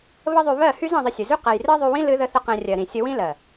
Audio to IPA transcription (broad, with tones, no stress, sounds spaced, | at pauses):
β ə˦ ðˤ y˧ β ɜ˦˨ h y˦ z ɛ̃˧ ðˤ ɪ˧ sʲ ɨ˨ z y˦ q ɛ˨ j r ɜ˦ ðˤ y˧ w ĩ˦ l ɨ˦ ð ə˦ θ ə˦ q ɛ̃˧ rʲ ɜ˨ ɾ ĩ˨ sʲ ə˧ w ĩ˦ l ɜ˨